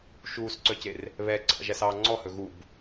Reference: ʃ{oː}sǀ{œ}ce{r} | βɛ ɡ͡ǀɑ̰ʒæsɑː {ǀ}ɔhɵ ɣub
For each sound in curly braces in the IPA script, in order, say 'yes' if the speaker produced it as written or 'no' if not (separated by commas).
no, yes, yes, no